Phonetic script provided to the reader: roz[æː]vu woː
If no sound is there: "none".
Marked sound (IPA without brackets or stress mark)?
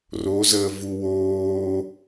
əː